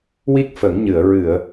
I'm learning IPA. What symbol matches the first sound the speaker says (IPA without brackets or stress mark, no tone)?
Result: w